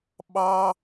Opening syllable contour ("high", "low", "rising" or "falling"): high